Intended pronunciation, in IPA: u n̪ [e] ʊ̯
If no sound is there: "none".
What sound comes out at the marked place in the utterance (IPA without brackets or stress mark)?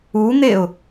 e